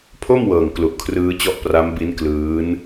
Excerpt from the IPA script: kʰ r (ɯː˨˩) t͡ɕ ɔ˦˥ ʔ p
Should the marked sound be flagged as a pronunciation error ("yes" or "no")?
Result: yes